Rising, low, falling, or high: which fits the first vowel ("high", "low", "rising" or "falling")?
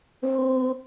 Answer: high